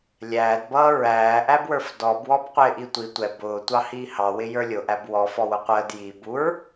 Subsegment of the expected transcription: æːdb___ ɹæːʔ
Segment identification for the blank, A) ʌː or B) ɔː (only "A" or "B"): A